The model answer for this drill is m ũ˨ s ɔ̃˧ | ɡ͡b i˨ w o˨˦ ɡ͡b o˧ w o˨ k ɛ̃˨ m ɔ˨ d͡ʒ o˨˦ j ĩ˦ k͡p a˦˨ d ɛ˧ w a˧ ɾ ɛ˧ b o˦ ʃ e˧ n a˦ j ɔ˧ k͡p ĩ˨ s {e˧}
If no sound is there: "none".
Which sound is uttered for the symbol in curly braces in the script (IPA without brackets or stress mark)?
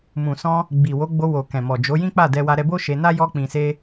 e˧